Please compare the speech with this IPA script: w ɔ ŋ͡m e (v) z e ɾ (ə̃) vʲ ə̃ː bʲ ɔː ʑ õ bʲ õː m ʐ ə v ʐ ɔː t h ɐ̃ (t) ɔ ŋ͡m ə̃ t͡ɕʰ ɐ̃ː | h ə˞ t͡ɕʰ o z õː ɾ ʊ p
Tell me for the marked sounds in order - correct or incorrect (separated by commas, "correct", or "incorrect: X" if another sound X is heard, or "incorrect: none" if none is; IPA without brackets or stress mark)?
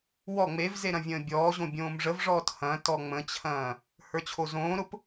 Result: correct, incorrect: ɐ̃, correct